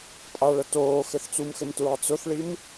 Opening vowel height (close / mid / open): open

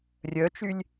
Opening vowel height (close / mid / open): mid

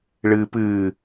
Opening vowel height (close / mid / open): close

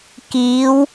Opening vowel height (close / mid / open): close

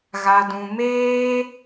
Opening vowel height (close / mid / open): open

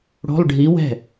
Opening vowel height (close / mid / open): mid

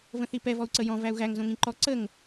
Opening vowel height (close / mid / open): mid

